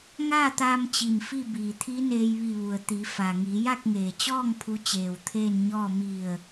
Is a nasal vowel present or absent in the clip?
absent